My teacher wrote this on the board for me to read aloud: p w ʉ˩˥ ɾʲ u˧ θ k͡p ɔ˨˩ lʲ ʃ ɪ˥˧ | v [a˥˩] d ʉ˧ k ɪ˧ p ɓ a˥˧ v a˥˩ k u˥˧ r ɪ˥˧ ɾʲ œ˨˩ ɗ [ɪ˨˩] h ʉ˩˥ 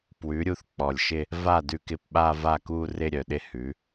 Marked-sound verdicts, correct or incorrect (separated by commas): correct, incorrect